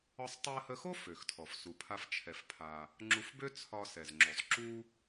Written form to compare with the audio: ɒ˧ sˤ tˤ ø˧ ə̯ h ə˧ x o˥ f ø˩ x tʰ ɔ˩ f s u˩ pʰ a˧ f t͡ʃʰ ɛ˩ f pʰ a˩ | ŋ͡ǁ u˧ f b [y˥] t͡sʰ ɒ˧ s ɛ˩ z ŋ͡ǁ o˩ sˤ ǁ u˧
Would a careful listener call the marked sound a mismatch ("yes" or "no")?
yes